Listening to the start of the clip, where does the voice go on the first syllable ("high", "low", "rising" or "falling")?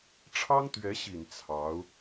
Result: high